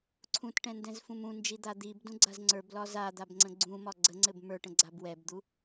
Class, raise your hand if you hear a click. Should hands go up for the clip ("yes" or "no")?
yes